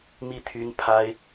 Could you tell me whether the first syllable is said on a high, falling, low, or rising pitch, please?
falling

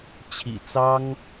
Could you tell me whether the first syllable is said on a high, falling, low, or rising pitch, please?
low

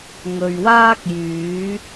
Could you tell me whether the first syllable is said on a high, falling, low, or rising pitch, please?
low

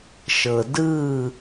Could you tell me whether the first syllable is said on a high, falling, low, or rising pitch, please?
low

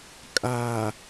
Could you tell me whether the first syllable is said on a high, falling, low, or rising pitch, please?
low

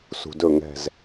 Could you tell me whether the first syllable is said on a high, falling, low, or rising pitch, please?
low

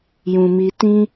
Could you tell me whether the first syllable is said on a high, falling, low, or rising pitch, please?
low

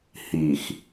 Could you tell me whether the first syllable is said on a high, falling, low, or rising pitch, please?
low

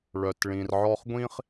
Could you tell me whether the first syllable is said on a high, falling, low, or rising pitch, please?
low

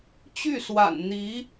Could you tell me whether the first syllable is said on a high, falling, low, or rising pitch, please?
falling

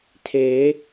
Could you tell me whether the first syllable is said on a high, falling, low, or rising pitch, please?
rising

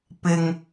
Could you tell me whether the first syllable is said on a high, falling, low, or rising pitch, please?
low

